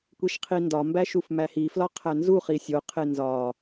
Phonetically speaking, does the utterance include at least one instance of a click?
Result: no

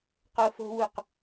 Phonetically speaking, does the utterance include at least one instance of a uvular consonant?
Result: yes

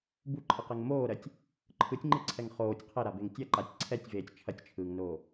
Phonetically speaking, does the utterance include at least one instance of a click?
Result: yes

